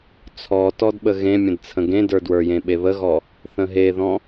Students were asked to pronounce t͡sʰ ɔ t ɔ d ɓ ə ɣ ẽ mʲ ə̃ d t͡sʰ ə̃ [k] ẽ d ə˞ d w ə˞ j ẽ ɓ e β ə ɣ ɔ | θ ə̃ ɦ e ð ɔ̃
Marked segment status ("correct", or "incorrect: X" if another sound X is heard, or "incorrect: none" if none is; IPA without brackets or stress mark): incorrect: ɡ